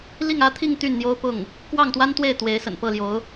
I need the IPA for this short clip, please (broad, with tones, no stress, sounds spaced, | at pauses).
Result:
l i˥˩ ŋ ä˥ t̪ʰ i˥˧ ŋ t̪ y˥˩ n n̪ j o˥ ʊ̯ p ʊ˥˩ ŋ | k w ɑ˥˩ ŋ t̪ w a˥ n t̪ w e˥˩ ɪ̯ t̪ w e˧˥ ɪ̯ s ə̰˨˩ n p ɤ˥˩ l j o˧˥ ʊ̯